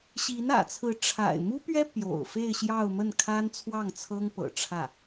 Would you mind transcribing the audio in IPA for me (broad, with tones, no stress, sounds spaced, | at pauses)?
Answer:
ɕ i˧˥ n ä̰˨˩ t͡sʰ ɹ̩˧˥ ʈ͡ʂʰ a̰˨˩ ɪ̯ m u˥ p ɥ ɛ˥ p j o̰˨˩ ʊ̯ f e˥˧ ɪ̯ ɕ j ɑ˥˧ ʊ̯ m ə˥˩ n kʰ a˥ n t͡sʰ w ɑ˥˩ ŋ t͡sʰ ɤ˥ ŋ p ɤ̰˨˩ ʈ͡ʂʰ ä˥˩